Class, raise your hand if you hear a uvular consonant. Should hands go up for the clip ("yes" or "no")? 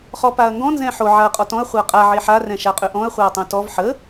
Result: yes